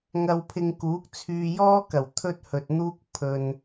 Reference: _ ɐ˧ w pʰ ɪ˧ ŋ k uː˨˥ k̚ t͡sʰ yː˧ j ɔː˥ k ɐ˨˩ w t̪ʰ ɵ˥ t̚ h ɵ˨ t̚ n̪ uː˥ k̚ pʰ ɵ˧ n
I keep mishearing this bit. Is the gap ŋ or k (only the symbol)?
ŋ